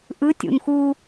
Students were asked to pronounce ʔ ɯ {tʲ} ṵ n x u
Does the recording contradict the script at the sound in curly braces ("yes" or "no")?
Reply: no